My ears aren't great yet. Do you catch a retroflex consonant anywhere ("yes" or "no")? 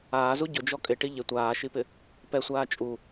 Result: yes